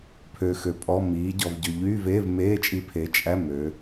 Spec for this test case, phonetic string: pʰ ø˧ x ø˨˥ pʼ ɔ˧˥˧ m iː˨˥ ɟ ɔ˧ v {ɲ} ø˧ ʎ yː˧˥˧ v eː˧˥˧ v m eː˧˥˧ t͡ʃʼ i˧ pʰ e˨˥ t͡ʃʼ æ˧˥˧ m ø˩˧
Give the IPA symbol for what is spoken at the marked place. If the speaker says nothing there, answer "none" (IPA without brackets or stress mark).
ɟ